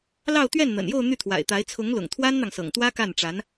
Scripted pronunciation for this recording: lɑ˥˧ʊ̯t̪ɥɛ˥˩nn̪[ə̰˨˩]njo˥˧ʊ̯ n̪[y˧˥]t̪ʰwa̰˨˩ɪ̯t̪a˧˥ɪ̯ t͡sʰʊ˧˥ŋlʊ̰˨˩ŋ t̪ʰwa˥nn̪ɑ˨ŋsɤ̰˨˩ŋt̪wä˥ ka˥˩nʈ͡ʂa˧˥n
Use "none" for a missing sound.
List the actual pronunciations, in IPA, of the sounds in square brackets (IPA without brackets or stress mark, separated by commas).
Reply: ə̰˨˩, y˥˩